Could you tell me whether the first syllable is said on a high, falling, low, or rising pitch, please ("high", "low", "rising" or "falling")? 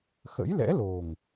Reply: rising